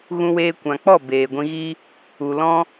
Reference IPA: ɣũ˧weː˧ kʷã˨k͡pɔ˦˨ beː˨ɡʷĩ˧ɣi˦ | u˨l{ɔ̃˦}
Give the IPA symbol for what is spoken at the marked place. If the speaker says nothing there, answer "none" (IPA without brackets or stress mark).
ɔ̃˦